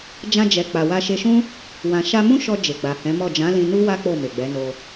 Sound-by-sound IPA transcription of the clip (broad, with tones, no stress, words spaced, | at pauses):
d͡ʒã˧d͡ʒɛ˨ k͡pa˨wa˧ʃe˧ʃũ˦ | wã˨ʃa˧mũ˦ʃɔ˧ d͡ʒe˨ɡ͡ba˨hɛ̃˨˦mɔ˦˨ d͡ʒã˨˦lĩ˧ nu˦wa˦ k͡po˦˨me˨ɡ͡bɛ˨˦no˧